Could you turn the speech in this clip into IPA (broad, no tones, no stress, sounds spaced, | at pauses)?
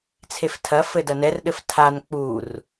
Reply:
t͡sʰ e f tʰ ɐ f ɘ d ɐ n ɛ r ɗ ɘ f tʰ a n k͡p u r